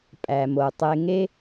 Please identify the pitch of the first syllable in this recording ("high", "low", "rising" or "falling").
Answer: low